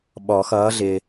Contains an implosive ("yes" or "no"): yes